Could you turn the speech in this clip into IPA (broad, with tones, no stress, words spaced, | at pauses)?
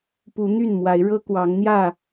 pu˨˦n̪y˥˨nmwa˨˦ɪ̯ ɻɤ˦kwɑ˨˦ŋ n̪jä˥˨